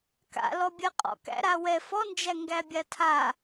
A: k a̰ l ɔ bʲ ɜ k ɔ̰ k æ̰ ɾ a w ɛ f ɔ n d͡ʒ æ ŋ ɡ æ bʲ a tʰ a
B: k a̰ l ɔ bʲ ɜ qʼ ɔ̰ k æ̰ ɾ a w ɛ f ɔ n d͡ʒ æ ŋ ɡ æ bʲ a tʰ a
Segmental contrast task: B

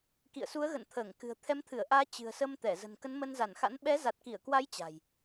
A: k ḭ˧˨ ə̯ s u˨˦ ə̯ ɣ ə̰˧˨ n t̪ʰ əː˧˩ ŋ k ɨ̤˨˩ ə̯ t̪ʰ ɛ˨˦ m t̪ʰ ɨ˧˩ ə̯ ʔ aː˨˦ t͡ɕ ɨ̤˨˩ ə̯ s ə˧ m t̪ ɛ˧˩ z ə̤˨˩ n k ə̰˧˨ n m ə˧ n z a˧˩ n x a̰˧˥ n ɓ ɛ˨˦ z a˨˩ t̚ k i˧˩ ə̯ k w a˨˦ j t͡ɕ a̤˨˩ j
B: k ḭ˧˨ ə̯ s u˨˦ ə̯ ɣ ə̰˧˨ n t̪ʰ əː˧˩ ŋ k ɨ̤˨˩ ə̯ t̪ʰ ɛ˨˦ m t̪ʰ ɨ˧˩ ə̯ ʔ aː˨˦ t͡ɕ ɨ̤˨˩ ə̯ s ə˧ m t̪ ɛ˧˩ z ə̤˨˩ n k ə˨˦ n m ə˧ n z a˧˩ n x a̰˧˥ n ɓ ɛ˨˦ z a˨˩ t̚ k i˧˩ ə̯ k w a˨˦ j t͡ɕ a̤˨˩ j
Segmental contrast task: B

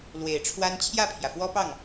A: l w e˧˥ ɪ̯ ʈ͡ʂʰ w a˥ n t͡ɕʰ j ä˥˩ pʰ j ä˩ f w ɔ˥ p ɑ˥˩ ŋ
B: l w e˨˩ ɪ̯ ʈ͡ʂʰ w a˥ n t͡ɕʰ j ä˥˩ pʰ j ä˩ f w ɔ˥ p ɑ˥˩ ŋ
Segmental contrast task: B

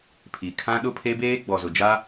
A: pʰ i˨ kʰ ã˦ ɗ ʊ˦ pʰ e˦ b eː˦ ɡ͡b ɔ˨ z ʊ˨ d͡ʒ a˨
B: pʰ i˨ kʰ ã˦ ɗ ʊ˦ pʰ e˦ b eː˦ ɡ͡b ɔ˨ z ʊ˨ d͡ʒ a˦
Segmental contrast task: B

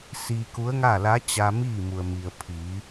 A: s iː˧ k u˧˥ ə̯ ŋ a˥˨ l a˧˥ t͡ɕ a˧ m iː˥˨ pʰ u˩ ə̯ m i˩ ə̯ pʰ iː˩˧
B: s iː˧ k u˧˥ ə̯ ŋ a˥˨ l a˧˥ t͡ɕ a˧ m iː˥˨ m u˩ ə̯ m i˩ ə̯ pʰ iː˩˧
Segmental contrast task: B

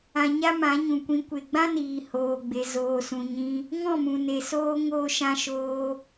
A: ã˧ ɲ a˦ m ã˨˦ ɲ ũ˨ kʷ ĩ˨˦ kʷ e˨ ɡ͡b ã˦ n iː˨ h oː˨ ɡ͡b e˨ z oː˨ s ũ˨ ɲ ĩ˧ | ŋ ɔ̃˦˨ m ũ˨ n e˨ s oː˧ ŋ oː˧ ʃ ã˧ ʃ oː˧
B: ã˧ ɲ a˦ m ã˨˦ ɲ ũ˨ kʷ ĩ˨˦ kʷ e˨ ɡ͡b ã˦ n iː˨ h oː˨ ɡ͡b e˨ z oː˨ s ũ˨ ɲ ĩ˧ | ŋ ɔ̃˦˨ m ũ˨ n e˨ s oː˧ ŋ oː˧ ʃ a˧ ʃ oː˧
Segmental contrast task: A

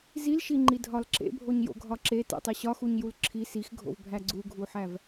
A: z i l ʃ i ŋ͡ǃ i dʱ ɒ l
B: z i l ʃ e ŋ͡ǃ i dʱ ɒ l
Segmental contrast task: A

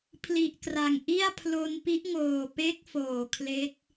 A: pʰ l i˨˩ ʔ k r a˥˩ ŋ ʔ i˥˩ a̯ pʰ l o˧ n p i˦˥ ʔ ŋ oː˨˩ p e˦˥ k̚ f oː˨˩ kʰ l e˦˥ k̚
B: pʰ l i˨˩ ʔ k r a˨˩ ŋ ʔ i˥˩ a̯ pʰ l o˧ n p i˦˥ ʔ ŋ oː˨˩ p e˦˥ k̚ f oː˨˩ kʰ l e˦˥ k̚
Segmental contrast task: B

